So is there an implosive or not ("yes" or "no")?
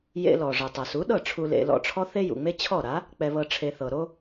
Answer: yes